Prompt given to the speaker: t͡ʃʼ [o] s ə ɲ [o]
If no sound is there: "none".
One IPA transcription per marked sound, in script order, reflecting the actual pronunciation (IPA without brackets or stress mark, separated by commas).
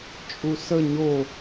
u, o